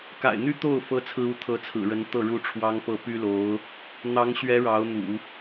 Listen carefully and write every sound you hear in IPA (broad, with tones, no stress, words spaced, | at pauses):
ka̰˨˩ɪ̯n̪y˥ t̪o˥˩ʊ̯ fɤ˥t͡sʰɹ̩˥u˧˥ t̪ʰɤ˧˥t͡sʰɹ̩˨˩ɻə˧˥n t̪ɤ˥˩ ɻu˥ʈ͡ʂʰwɑ˥ŋpɤ˥˩ py˥lo˧˥ʊ̯ | n̪ɑ˧˥ŋɕɥɛ˧˥ ɻɑ˧˥ʊ̯n̪ṵ˨˩˦